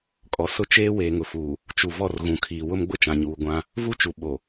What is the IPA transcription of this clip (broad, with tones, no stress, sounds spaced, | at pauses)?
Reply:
kʼ ɔ˨ s ʊ˦ t͡ʃ eː˦ w eː˨ ŋ ʊ˨ f uː˨ | t͡ʃ u˨ v ɔ˦˨ r ɣ ũ˨ kʰ iː˨ w ʊ˦ m ɡ͡b ʊ˦ t͡ʃ ã˨ ɲ uː˨ ɡʷ ã˦ | v u˦˨ t͡ʃ u˨ ɓ o˨